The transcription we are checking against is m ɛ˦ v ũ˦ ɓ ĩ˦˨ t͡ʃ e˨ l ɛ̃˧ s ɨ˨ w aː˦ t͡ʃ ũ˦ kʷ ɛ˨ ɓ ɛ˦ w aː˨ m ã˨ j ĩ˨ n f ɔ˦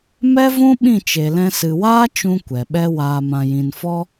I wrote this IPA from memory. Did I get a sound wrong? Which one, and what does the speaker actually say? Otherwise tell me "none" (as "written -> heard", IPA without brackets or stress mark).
none